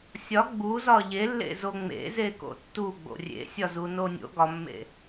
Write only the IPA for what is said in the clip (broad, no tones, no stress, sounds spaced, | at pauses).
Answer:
sʲ ɒ ɡ͡b u z ɒ ʎ e lː ḛ z o ŋ͡m ḛ z e k o̰ tː u ɡ͡b o̰ rʲ ḛ sʲ ɒ z u n o nʲ o̰ ɡ ɒ mː ḛ